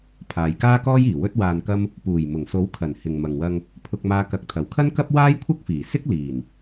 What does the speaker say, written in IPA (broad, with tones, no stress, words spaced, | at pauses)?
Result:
pʰaː˨jkaː˥kɔː˥jiː˨˩ wɵ˧t̚waː˨nkɐ˧m | puː˨˩jmʊ˨˩ŋso˨˥w kʰɐ˨˩n hɪ˨ŋmɐ˨ŋwɐ˧ŋ | pʰʊ˧k̚maː˧ kɐ˨˥k̚t̪ʰɐ˨˩wkʰɐ˥nkɐ˥p̚ waː˥jkʷʰɐ˥k̚fiː˨˩sɪ˥k̚ liː˨˩n